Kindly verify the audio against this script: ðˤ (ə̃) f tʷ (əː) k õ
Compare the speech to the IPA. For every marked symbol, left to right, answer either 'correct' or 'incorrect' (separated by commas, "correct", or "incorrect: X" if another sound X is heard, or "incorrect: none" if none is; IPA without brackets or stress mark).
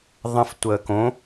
correct, correct